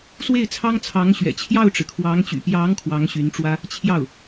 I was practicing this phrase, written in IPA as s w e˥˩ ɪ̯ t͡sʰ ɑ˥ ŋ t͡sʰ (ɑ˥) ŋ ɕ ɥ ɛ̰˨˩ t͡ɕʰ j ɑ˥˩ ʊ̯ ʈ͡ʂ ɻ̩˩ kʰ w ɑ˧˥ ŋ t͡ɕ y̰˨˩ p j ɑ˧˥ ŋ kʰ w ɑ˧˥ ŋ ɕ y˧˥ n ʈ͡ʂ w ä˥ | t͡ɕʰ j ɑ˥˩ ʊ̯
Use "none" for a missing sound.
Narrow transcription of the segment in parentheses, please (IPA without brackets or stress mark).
ɑ˧˥